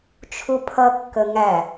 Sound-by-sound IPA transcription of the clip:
t͡ʃʰ u pʰ ʌ kː ə ŋ æ

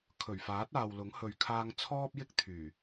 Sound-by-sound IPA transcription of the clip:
kʰ ɵ˨˩ ɥ f aː˨˥ t̚ aː˨ w l ʊ˨˥ ŋ h ɵ˧ ɥ kʰ aː˥ ŋ t͡sʰ ɔː˥ p̚ j ɪ˥ k̚ t̪ʰ yː˨˩

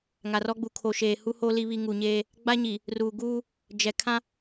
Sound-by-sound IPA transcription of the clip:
ŋ a˨ r ɔ˦ ɡ͡b u˨ kʰ o˨ ʃ eː˨ h u˦ h oː˦ l i˦ β i˦ ŋ u˨ ɲ eː˦ | ɡ͡b a˦ ɲ i˨ | r uː˨ ɡ uː˦ | d͡ʒ ɛ˨ kʰ ã˦

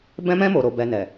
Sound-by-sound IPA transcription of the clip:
b ɛ̃˧ m ɛ̃˧ m o˨ ɾ o˨ b ɛ˨ n ɛ˨

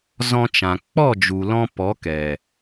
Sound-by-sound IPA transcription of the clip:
z ɔ̃˧ t͡ʃ ã˨ k͡p ɔ˦˨ d͡ʒ u˨ l ɔ̃˧ p ɔ˨˦ k ɛ˨

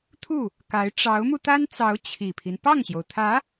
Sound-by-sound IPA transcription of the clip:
t̪ʰ u˥˩ | k a˧˥ ɪ̯ ʈ͡ʂ ɑ˧˥ ʊ̯ m u˧ t̪ a˥ n t͡s ɑ˧˥ ʊ̯ t͡ɕʰ i˨˩ pʰ i˦ n p ɑ˥˩ ŋ ɕ j o˩ ʊ̯ t̪ʰ ä˧˥

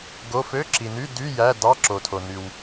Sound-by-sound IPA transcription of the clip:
ɡ o˧˥˧ f ø˧˥˧ ǁ i˨ n y˧˥˧ d y˧˥˧ j æ˧˥˧ d ɑ˧˥˧ ǁ o˨ tʰ o˨ n y˨ w

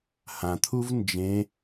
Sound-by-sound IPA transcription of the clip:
h ã t̪ʰ u v n d͡ʒ ẽ

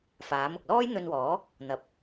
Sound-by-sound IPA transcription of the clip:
f aː˨˥ m ʊ˨ k̚ l ɔː˥ j n̪ ɵ˧ n w ɔː˨˥ | n̪ ɐ˧ p̚

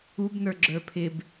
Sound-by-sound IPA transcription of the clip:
u b n ə˞ ɡ͡ǁ ə˞ pʰ ɪ b

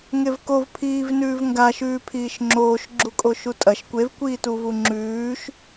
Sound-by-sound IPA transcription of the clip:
ŋ e v k o v pʰ iː v n ʉː v ŋ ɡ a ʃ ʉː pʰ iː ʃ ŋ͡ǁ oː ʃ ɡ͡ǁ u kʼ o ʃ u tʼ ɐ ʃ kʷ e v kʷ iː t u v u ŋ͡ǁ ʉː ʃ

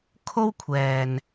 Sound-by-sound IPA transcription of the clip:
kʰ o˥ w kʷʰ ɛː˨ n

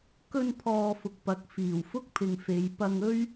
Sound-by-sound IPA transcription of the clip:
k ɵ˧ n pʰ ɔː˨ f ʊ˨ k̚ p ɐ˨ k̚ f iː˨˩ w f ʊ˥ k̚ pʰ ɪ˨ ŋ f e˨˧ j p ɐ˧ ŋ ɵ˥ ɥ

